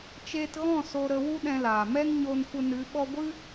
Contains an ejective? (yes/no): no